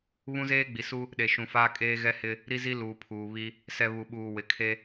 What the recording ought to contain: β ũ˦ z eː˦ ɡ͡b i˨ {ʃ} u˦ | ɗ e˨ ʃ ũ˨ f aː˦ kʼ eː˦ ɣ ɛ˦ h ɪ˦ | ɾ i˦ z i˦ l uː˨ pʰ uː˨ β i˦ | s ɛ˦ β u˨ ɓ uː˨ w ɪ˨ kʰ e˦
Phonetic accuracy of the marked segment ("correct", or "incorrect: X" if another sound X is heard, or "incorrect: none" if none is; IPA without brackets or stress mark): incorrect: s